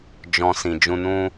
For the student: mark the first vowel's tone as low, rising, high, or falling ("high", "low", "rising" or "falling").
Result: low